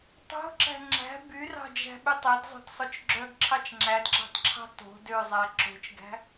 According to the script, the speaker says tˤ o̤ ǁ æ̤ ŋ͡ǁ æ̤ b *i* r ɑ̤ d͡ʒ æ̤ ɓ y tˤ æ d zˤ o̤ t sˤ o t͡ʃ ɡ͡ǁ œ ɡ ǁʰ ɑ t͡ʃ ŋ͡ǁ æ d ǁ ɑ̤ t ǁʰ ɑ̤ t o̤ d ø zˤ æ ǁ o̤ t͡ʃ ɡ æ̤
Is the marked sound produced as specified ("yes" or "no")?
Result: no